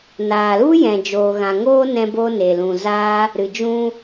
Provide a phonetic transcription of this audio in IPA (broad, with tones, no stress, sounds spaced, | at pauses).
n aː˨ l u˦ j ɛ̃˨ d͡ʒ oː˨ ɣ ã˨ ŋ oː˦ n ɛ̃˧ b oː˧ n e˨ l ũ˨ z aː˦ | ɾ ɨ˨ d͡ʒ ũ˧